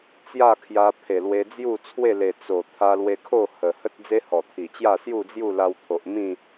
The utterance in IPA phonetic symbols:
t͡sja˥˧kʰja˧ pʰe˨˩lwe˧ d͡zju˥˧t͡sʰwe˥˧le˨˩ t͡so˨˩ t̪ʰa˧lwe˧kʰo˥˧ hə˨˩hə˦t̚ d͡ze˦hɔ˨˩t̪ʰi˨˩t͡ɕja˥˧ sju˥˧d͡zju˥˧la˧wt̪ʰo˨ʔ mĩ˥˧

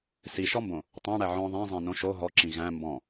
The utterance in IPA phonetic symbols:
siʃɔmbõ | tˤæ̃ɽæ ʕɔ̃ ðˤæ̃zˤæ̃nõ ʃo ɦɔǁĩ ɣæ̃ mbɔ̃

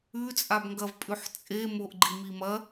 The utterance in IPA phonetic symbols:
ʉt͡sʼabŋɡɐv pʼʉħt͡sʼemoʔɡ͡ǃi mimɐ

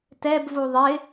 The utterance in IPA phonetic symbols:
tɛbvu ðˤɪ

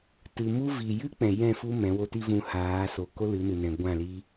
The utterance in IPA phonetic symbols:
tɨ˨mu˦ vi˨jɨ˦ k͡pɛ̃˨jɛ̃˦˨fu˦ mɛ̃˨˦wo˦ti˦ vũ˧haː˨˦so˨ ko˦lɨ˨˦nɨ˨nɛ̃˨ ɡʷã˦˨li˦

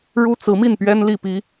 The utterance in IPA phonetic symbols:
ɻu˥t͡sɹ̩˧˥mi˥˩npɥɛ˥n li˥˩pi˥

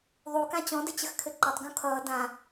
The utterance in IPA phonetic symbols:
ðˤukã t͡ɕɔ̃dɘt͡ɕəxkʰɘ ǃʌtˤɡũ kʰʌː dã

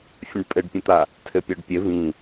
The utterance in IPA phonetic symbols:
fʲə̃ɖpʼɘɖpʲə̃t̪a | tʰɘpʲɔɖpʲɘ vĩ

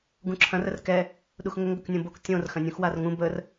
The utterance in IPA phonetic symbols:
ɡũǁʰɐ̃ rərkɛ | ɗuxŋəŋ ɡɵknʲõbok tʲõr xɐ̃nʲũxwarŋũ bər

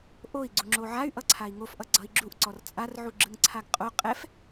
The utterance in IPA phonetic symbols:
ʔoi̯ɡ͡ǀu ŋ͡ǁoʕay̯ʔʌǀʰai̯ ŋofʔʌ ɡ͡ǀʌi̯ɡ͡ǁuʔǀɔr t͡sʼarʕu ɡ͡ǁɯŋǀʰaɡqʼo qʼɛf

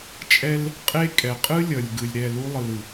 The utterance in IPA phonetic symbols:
t͡ʃʼɛ˦l | qʼe˦ kʼɛ˨qʼɯ˦lʲʌ˨lʲ ɡɯ˨lʲɾɛ˦˨ lu˦lˠɯ˨l ɯ˨

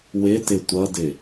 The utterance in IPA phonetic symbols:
wɪtɪ tʷʌdɪ

